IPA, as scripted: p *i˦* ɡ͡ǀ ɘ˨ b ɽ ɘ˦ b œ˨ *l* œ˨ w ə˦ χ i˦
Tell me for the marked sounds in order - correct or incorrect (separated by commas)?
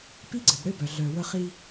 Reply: correct, incorrect